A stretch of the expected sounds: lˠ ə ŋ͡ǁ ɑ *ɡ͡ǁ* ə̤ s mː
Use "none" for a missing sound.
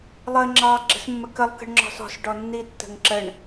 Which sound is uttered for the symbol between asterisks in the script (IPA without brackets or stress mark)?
ɡ͡ǁ